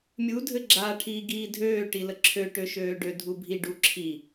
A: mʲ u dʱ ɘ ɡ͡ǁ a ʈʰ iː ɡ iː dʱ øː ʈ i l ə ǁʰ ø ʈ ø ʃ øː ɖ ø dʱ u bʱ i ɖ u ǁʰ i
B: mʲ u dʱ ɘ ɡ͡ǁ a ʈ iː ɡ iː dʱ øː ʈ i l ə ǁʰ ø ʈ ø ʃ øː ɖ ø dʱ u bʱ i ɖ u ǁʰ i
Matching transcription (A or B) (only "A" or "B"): A